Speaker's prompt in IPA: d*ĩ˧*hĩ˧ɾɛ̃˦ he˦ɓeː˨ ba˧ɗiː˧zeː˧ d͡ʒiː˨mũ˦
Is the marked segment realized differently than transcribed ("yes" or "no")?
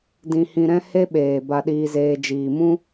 no